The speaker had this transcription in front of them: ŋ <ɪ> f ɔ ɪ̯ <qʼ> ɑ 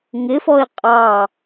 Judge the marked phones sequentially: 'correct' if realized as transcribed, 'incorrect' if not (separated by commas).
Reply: correct, correct